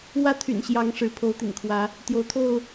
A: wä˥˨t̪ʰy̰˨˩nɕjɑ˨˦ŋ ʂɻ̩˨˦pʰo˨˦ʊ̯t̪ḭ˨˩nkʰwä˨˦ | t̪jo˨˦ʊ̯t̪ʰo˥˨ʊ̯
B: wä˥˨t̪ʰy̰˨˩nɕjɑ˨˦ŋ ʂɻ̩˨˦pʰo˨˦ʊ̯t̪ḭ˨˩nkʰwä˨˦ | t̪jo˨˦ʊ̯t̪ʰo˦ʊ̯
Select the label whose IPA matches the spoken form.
A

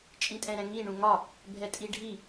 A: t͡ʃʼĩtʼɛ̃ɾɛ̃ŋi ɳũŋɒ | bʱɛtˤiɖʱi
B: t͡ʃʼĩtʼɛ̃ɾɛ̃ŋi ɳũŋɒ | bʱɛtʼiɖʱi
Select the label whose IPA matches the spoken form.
B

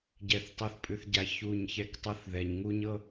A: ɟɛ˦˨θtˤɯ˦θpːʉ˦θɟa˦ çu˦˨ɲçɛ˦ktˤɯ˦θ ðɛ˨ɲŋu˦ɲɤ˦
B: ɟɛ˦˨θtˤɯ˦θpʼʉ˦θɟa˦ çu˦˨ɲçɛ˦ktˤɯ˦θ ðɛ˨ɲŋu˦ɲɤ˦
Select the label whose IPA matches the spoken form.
B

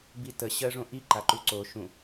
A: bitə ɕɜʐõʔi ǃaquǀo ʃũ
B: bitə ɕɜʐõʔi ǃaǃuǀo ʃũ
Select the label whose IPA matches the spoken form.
B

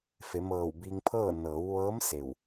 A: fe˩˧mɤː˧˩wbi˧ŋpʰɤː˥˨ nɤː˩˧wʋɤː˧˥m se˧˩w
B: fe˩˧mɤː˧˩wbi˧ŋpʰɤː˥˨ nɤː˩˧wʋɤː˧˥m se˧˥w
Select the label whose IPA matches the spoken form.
A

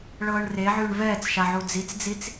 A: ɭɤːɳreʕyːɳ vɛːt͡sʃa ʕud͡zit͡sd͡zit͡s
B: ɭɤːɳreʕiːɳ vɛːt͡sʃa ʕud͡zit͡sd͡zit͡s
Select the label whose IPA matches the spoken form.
A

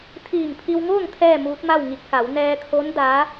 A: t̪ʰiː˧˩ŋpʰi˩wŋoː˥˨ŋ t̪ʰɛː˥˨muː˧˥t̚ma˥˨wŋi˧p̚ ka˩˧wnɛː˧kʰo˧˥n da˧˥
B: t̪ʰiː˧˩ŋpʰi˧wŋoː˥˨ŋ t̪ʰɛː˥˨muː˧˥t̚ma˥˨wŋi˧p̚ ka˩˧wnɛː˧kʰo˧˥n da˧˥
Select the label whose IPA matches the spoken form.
B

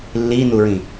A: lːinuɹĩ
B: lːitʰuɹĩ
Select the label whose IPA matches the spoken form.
A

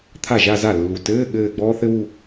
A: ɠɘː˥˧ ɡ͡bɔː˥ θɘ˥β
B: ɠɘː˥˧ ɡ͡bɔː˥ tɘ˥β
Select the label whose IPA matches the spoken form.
A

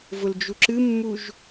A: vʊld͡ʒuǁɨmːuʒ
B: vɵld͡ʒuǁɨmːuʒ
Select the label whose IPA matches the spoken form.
A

